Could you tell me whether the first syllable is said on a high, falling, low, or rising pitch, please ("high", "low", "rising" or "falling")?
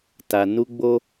low